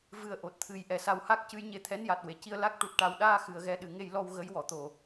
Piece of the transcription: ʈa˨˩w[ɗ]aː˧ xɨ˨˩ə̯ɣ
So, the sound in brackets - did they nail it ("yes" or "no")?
yes